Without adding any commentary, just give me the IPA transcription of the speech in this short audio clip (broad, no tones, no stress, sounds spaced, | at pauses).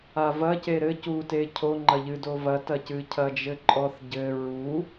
a v ɐ c e ɾ ɘ c u t e cʰ o ŋ͡ǃ ɐ ʎ ɨ d o v ɐ t ɐ c ɨ cʰ ɐ d͡ʒ ɘ ǃʼ ɔ θ ɟ ɘ ɹ u